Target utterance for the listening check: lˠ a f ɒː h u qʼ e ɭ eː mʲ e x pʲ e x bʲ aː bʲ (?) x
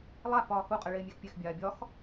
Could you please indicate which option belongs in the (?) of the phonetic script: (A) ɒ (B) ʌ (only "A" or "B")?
A